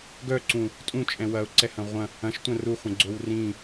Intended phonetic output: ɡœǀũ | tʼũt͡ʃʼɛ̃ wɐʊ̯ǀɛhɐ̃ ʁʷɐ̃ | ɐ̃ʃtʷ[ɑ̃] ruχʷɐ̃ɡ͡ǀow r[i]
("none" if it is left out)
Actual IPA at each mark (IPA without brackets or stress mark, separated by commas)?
ɐ̃, ĩ